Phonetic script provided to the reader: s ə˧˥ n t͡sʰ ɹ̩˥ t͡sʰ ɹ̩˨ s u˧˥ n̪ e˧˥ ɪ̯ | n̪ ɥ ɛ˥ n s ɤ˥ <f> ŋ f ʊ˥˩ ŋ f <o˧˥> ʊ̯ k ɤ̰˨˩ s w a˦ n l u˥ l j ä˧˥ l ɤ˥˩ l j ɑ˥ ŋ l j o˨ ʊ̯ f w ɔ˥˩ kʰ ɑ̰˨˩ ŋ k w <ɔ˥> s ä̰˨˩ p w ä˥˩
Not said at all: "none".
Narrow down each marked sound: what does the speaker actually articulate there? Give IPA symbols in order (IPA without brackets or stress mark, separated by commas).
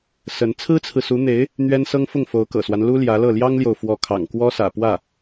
none, o˧˥, ɔ˥